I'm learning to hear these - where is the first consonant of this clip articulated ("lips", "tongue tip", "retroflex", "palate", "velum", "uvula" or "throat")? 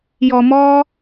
palate